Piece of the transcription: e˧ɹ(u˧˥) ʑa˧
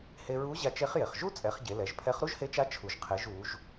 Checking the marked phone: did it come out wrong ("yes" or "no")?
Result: no